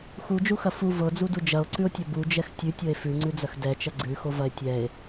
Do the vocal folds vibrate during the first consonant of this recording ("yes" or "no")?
no